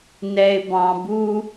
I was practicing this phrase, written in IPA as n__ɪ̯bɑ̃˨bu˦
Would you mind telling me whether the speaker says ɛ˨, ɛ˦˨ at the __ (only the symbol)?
ɛ˨